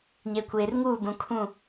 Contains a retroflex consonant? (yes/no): no